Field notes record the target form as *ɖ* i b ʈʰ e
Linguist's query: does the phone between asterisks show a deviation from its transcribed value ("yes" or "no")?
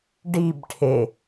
no